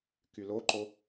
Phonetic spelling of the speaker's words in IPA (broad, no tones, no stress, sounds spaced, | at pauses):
k y l o ǃ o